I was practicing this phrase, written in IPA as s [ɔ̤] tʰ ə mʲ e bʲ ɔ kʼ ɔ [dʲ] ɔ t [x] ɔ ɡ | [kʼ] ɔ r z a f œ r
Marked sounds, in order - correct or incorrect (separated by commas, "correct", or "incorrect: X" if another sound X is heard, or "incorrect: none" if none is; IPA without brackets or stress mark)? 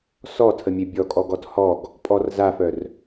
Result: incorrect: ɔ, incorrect: ɡ, incorrect: h, incorrect: pʼ